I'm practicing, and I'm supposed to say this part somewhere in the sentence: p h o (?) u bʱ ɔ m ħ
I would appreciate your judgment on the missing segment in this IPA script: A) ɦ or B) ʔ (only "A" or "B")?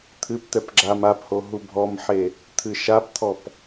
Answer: A